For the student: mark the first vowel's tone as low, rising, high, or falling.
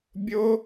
high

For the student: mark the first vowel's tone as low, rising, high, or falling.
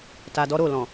low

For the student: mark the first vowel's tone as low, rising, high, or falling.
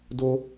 high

